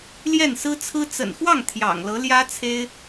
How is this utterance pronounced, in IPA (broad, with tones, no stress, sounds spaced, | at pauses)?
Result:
l j ɛ˥˩ n s ɹ̩˥ t͡sʰ ɹ̩˥ t͡s ə̰˨˩ n x w ɑ˥˩ ŋ t̪ʰ j ɑ̰˨˩ ŋ l ɤ˧˥ l j ä˥ t͡sʰ e˥ ɪ̯